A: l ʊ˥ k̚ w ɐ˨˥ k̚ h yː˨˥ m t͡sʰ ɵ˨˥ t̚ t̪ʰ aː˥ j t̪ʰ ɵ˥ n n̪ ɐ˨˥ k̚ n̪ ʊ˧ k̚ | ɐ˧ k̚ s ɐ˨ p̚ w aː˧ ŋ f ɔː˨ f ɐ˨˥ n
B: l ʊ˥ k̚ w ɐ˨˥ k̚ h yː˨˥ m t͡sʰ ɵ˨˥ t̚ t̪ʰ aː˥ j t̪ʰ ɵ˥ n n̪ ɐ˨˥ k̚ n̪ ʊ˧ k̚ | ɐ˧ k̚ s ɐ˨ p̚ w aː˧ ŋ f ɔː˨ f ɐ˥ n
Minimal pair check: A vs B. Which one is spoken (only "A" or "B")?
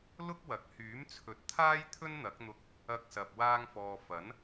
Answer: A